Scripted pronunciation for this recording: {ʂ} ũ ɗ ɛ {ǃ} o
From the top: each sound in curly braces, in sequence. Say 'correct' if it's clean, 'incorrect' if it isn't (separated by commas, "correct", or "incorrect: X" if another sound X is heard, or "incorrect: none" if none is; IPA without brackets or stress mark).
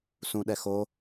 incorrect: s, incorrect: x